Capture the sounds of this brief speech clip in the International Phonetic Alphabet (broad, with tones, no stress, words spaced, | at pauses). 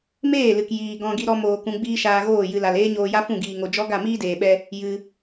meː˦˨lɨ˨k jiː˧ɡɔ̃˦ ɡi˦ɾɔ˦moː˧kũ˧ ɡ͡biː˦ʃaː˧ɣoː˦˨ jɨ˧la˨l eː˦ɲoː˧ja˦fũ˦˨ ɡiː˧ŋo˧ d͡ʒɔ˦ɡa˦˨ miː˦deː˨ɓɛ˧ | jɨ˧